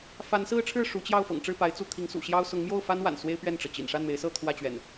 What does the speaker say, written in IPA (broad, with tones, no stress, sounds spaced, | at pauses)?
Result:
f a˨˦ n s ɹ̩˦ ʈ͡ʂʰ ɻ̩˥˨ ʂ u˨˦ t͡ɕ j ɑ˥˨ ʊ̯ f ɤ̰˨˩ ŋ ʈ͡ʂ ɻ̩˥˨ p a˨˦ ɪ̯ t͡s u˥˨ t̪ʰ i˨˦ ŋ s ṵ˨˩ ɕ j ɑ˦ ʊ̯ s ʊ˨˦ ŋ m j o˥˨ ʊ̯ f a˦ n w a̰˨˩ n s w e˦ ɪ̯ p ɥ ɛ˥˨ n ʈ͡ʂ ɤ˩ t͡ɕ ḭ˨˩ n ʂ a˥˨ n m e˨˦ ɪ̯ s ɤ˥˨ t̪ʰ w ä˥˨ t͡ɕ ɥ ɛ̰˨˩ n